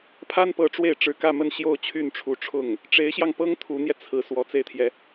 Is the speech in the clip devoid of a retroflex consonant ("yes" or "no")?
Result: no